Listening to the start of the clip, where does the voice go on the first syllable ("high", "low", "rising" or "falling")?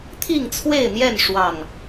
falling